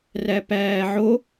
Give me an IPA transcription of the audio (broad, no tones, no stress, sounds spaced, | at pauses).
r æ p æː ʕ o